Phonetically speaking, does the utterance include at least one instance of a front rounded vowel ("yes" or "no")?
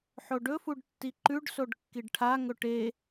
no